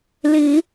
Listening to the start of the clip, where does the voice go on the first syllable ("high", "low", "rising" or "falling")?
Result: rising